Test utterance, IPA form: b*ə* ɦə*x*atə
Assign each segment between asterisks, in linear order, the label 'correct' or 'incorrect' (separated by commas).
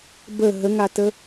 correct, incorrect